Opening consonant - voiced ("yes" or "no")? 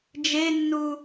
yes